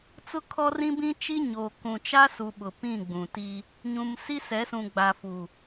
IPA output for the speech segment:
t͡s ʊ˦ kʰ ɔ˦ r ĩ˦ b ĩ˦ t͡ʃ i˦ ɲ oː˨ k ũ˨ t͡ʃ a˦ s u˨ ɓ ʊ˨ p ĩ˦˨ ɡ͡b ũ˨ t i˦ | ɲ ũ˨ m s i˦ s ɛ˨˦ s ũ˨ ɡ͡b a˨ f u˨

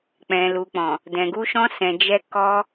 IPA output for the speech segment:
k͡p ɛ̃˨ l u˨ k͡p ɔ̃˨ | d ɛ̃˨ ɡ u˧ ʃ ɔ̃˧ s ɛ̃˨ d͡ʒ ɛ˧ k ɔ˧

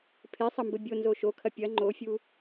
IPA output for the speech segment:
pʰ e sˤ ɐ m b ɘ bʲ o n z o ʃ o kʰ ɐ pʲ ɐ ŋ͡ǃ o fʲ u

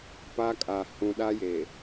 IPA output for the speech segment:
p a˦ kʼ a˨ h ũ˨ ɗ a˦ j e˨

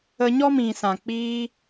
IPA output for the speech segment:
ə˧ ɲ ɔ˦ m ĩ˨ s ã˨ k͡p iː˧

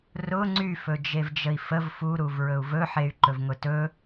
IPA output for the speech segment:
r ʊ ŋ͡ǀ y f ɵ d͡ʒ e v d͡ʒ ə i̯ f ə v f u ɾ u v ɹ ɵ u̯ v ɵ ħ e y̯ ǃ ɵ v ŋ ʊ t ɵ

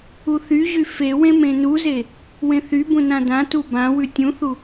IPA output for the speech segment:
u θ y ʑ y f e w ẽ m ẽ n u z e | w ẽ θ y b ũ n ã d ã t u b ã w ʉ tʲ ũ θ u

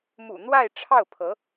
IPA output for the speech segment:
m ṵ˨˩ n̪ w a˥˧ ɪ̯ ʈ͡ʂʰ ɑ˥˩ ʊ̯ pʰ ɤ˧˥

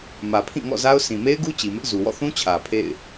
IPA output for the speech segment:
m ä˨ pʰ ĩ˦˨ ŋ ɔ̰˦˨ z a˦ ʊ̯ s ĩ˨ m e˦ ɪ̯ ɡ u˦ t͡ɕ i˨ m ɪ˦ ʔ z u˨ w ɔ̰˦˨ θ ũ˦ t͡ɕʰ ä˨ pʰ ḛ˦˨ ɪ̯

